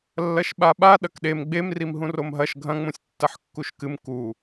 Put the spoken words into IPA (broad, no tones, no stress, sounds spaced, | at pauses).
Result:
lː ɐ ʃ ɓ a ɓ a ɗ ɐ k ɗ e m ɡ͡b e m r i m ɦ ũ r o m ɦ ɐ ʃ ɡʱ ɐ̃ ŋ͡m ũ sʲ tː ɐ ħ kː u ʃ k ɨ m k u